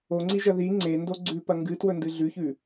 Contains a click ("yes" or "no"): yes